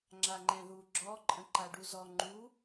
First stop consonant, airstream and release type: click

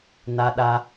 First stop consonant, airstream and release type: implosive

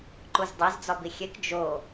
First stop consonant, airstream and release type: click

